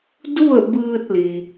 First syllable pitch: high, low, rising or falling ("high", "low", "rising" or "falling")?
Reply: falling